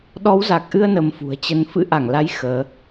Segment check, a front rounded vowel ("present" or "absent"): absent